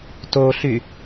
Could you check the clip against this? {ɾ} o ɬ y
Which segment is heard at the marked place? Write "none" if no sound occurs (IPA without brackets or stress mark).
t